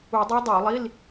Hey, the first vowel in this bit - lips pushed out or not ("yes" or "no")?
yes